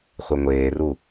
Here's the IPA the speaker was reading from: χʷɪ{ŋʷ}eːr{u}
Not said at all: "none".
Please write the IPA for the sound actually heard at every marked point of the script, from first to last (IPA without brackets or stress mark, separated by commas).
ŋʷ, u